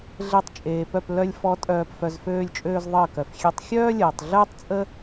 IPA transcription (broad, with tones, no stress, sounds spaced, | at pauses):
ɮ e˧ tˤ t͡ʃʼ eː˨ p œ˦˨ p l œ˧ lʲ f ɔ˨˦ tʼ œː˨ p f œ˧ z f øː˦ lʲ t͡ʃʼ øː˦ z ðˤ əː˦˨ k œ˨ f xʲ e˧ tˤ xʲ œː˦ lʲ əː˨ tˤ ɮ əː˦ tˤ t͡sʼ ə˦